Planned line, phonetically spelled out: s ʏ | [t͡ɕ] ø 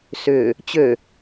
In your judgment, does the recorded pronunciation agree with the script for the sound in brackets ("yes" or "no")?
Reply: yes